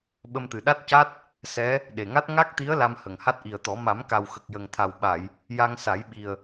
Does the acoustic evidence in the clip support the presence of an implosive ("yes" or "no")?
yes